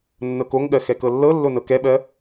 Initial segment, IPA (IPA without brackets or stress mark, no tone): nː